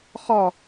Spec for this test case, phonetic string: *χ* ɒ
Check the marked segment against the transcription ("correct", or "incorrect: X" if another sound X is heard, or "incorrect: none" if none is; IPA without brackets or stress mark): correct